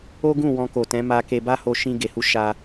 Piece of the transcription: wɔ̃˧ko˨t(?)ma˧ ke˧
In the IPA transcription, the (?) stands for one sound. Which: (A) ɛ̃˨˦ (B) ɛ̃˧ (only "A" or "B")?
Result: A